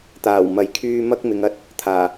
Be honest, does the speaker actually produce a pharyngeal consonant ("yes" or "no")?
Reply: no